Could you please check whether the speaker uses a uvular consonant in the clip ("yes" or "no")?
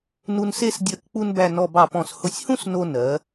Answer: no